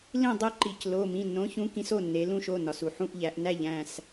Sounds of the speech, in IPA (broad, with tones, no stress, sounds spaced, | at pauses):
l ĩ˥˨ dˤ e˦ ǃ i˩ c l o˩˧˩ m ĩ˩˧˩ nː õ˨˥ ç ũ˨˥ k ĩ˨˥ s o˩˧˩ nː e˩˧ l ũ˦ ʃ o˩˧˩ n ɒ˩ s u˩ ħ ũ˦ ʔ ʎ æ˩˧ ʔ n æ˥˨ ʎ æ̃˥˨ s